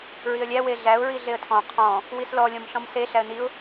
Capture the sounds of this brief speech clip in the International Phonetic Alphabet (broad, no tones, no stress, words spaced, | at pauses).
ɹiə̯lʲæ weɮæʊ̯ ɹiɮeə̯tʰɔ̃ qʰɔ̃ | wislɔ lʲɔ̃mɬɔ̃mse ɬæə̯niʊ̯